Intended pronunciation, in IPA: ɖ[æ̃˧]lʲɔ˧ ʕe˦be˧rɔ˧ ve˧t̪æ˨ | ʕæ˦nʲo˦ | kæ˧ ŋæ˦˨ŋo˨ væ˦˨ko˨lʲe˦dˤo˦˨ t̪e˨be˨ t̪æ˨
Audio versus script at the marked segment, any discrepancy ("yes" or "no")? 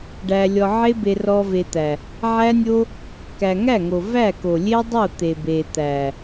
yes